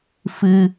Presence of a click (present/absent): absent